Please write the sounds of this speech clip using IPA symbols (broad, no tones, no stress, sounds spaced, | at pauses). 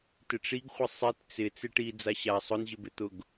t ɪ ʈ͡ʂ i ɡ χʷ ɪ sˤ i t t͡s ɪ t͡s ɪ ʈ i d͡z a ɕ a sˤ ʊ n ʑ ɪ b ɪ t̪ ʊ ɡ